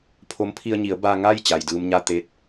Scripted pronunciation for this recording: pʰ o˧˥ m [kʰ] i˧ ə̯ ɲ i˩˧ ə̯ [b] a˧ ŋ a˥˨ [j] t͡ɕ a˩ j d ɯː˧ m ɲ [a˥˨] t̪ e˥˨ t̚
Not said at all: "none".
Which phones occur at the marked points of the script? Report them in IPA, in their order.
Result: pʰ, b, j, a˥˨

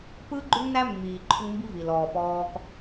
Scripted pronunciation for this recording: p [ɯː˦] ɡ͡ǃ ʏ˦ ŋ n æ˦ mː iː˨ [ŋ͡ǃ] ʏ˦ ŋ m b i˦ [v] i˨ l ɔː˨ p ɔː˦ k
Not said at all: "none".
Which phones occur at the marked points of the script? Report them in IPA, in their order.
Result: ɯː˦, ǃʰ, v

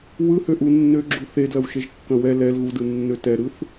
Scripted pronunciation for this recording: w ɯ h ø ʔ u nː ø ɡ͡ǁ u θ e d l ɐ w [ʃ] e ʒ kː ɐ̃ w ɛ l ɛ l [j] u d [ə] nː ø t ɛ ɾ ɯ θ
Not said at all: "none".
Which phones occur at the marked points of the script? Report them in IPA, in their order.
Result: ʃ, ɣ, ɯ

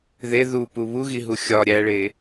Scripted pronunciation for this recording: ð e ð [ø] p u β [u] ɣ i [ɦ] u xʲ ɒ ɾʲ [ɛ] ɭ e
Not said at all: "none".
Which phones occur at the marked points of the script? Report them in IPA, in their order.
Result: u, u, ɦ, æ

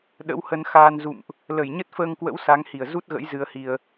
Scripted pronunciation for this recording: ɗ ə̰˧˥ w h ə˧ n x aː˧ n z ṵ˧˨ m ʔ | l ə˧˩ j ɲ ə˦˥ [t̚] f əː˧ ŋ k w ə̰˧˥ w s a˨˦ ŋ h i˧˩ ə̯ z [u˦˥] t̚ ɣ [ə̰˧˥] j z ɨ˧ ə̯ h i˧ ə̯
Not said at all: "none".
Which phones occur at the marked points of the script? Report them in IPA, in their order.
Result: t̚, u˦˥, ə̰˧˥

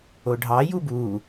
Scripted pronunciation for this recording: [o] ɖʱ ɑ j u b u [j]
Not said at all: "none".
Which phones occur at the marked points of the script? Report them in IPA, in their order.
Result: o, none

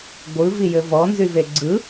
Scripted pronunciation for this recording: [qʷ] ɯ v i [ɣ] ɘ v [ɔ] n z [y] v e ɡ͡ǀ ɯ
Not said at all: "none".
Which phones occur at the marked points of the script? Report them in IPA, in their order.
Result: ɡʷ, j, ɔ, y

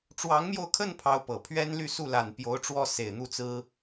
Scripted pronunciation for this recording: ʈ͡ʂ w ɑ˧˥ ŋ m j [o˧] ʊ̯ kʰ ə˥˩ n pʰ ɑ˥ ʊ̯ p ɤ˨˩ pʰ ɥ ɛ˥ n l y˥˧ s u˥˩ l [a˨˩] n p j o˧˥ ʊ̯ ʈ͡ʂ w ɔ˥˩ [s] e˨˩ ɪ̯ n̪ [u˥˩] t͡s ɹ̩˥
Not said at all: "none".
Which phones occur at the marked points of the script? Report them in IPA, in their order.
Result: o˧, a˨˩, s, u˥˩

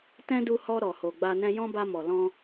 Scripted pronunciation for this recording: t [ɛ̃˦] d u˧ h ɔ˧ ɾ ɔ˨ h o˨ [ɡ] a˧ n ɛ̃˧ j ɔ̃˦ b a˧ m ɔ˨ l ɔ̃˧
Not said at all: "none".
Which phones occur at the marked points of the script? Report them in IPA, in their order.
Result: ɛ̃˦, ɡ͡b

